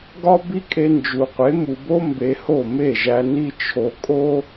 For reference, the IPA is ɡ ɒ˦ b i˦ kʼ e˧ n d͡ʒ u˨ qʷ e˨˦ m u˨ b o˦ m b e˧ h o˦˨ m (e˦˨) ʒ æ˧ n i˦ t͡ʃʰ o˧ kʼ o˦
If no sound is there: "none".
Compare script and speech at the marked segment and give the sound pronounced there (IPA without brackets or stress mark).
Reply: e˦˨